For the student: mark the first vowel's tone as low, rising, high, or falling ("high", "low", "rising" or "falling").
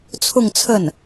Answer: falling